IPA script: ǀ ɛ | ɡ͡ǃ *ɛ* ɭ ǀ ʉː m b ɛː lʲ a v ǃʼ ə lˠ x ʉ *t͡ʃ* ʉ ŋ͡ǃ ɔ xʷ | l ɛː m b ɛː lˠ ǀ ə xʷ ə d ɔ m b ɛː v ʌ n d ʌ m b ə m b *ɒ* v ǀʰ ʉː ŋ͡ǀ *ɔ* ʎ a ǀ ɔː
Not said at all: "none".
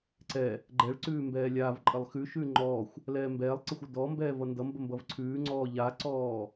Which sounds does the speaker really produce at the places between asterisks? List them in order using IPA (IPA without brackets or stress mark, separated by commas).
ɛ, ʃ, ʌ, ɔː